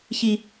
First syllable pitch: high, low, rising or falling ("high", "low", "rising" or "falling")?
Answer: high